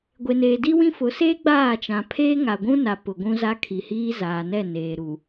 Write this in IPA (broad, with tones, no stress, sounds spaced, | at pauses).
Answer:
ɡʷ e˨ n eː˨ d i˦ w ĩ˦ f ʊ˨˦ s eː˦ ɡ͡b aː˦˨ t͡ʃ ã˨ pʰ eː˦ ŋ a˨ ɡʷ ũ˦ n a˨ p ʊ˨ ɡʷ ũ˦ z a˦ kʰ i˨ h iː˦ z aː˨ n ɛ˦˨ n eː˨ ɾ u˨